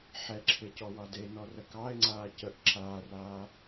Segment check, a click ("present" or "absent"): present